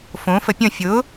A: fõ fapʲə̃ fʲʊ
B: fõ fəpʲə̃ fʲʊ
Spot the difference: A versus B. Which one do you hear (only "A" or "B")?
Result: B